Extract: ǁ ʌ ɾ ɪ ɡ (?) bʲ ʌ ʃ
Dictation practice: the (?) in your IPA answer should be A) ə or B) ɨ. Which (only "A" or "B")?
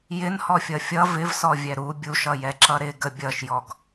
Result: A